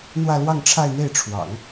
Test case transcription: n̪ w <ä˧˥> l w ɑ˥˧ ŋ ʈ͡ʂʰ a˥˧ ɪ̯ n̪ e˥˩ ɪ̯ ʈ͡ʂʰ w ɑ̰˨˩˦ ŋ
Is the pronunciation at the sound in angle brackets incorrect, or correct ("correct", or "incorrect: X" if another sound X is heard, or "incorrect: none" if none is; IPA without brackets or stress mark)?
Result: incorrect: ä˥˧